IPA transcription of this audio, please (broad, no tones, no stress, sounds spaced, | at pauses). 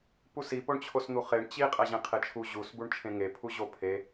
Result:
p u s i p o ɳ t͡ɕʰ o s n̪ u χ e ɳ t͡ɕ i qʼ æ ʑ ẽ qʰ e t͡ʃʰ u ʑ u s b u ɳ t͡ʃʰ ẽ ŋ e pʰ u ʑ o pʰ e